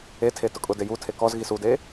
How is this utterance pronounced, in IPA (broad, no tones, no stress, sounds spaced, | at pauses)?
e tʰ e t ʊ kʼ ʊ d e j u tʰ e k ɔ z ɣ i s u d e